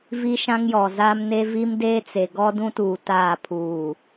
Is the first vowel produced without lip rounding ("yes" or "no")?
yes